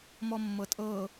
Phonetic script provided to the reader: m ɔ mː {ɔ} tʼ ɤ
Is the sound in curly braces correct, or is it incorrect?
incorrect